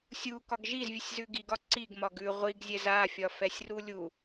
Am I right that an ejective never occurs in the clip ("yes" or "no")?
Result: yes